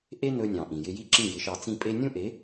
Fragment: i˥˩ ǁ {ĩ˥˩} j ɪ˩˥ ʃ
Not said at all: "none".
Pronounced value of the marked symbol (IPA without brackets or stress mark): ĩ˥˩